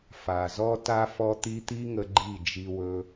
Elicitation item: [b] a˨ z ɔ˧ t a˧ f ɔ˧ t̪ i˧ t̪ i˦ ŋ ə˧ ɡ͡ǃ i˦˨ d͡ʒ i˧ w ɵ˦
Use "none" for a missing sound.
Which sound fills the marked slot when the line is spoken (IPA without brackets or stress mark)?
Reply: f